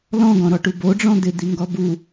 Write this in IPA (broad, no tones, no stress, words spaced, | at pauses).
lɔ̃ɡɔ̃ɾɔʈu boɖ͡ʐɔ̃ d̪ɪd̪iŋɡɔ bu